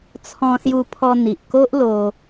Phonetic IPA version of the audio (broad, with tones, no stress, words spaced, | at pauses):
t͡sʰɔ̃˧ sju˧pʰɔ˧n̪i˨ʔko˦ʔ lo˧